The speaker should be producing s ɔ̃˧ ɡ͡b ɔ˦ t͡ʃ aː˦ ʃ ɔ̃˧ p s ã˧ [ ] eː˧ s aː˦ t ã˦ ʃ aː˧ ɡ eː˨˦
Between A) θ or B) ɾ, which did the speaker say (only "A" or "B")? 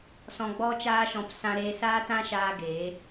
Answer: B